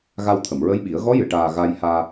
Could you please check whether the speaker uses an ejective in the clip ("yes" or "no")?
no